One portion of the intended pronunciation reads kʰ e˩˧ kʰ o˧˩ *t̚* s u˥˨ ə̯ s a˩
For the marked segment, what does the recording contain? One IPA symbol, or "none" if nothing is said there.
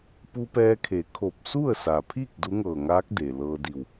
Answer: p̚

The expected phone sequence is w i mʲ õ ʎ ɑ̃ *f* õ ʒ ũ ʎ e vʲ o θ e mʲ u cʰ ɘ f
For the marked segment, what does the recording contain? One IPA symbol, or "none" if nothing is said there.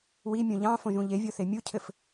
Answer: f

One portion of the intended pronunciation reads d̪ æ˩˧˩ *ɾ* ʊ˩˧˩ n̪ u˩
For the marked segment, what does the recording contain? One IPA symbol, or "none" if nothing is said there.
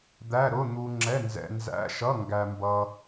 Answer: ɾ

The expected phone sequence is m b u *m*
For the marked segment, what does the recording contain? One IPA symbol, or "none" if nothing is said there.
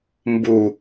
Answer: none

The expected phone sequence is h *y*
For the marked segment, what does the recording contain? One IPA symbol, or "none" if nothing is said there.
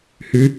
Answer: y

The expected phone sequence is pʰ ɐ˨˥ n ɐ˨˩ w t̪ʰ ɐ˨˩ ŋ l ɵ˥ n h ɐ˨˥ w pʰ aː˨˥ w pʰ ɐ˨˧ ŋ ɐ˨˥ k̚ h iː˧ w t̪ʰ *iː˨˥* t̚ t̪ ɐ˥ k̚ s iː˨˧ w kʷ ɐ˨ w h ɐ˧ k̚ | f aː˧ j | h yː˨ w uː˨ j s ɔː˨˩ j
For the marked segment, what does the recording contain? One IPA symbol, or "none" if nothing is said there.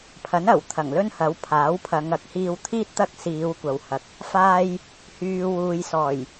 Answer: iː˥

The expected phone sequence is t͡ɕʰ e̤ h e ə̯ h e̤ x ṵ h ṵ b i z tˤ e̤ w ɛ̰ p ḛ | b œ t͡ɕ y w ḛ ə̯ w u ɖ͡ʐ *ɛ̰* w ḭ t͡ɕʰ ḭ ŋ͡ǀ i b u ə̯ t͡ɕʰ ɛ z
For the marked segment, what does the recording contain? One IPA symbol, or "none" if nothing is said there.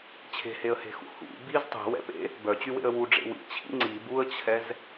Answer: ḛ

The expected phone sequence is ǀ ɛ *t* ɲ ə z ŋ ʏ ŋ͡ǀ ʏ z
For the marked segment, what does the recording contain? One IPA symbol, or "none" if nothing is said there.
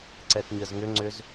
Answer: t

